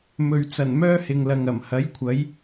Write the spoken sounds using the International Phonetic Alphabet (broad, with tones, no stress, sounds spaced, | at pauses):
m ɵ˨ ɥ t͡s ɐ˨˩ n m œː˥ h ɪ˨ ŋ l ɐ˨ ŋ ɐ˨˩ m h ɐ˨˥ j kʷʰ ɐ˨˥ j